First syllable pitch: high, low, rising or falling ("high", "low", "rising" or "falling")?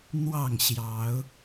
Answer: falling